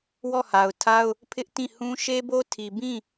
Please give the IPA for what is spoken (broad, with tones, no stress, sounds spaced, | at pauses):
w ɔ˦˨ h a˨ ʊ̯ tʰ a˦ ʊ̯ | pʰ ɪ˦ ʔ t ĩ˦˨ h ũ˦ ʃ e˦ b o˦ tʰ i˨ b ĩ˦˨